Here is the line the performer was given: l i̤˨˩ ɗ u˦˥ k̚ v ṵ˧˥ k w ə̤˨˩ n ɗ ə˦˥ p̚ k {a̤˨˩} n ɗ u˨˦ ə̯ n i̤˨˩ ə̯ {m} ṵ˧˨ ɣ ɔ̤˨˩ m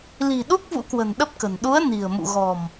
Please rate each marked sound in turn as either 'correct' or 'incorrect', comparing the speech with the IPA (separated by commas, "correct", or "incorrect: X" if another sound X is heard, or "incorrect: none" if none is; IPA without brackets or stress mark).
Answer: incorrect: ə̤˨˩, correct